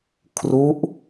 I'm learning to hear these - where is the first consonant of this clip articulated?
velum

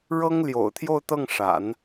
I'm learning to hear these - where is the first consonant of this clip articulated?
retroflex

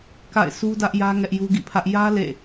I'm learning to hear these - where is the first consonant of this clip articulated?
velum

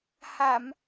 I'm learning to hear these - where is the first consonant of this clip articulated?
throat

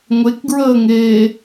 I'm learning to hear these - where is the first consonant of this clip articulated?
velum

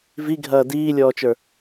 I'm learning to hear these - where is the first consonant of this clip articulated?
lips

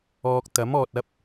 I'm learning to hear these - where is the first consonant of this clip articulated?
velum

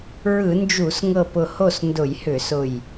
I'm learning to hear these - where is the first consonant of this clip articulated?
tongue tip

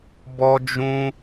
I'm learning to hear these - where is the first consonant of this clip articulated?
lips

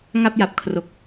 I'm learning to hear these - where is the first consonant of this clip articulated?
velum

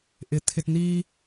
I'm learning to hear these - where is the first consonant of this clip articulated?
throat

